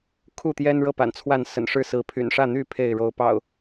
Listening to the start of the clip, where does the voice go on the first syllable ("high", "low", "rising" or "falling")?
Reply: falling